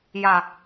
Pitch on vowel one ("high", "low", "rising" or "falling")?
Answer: low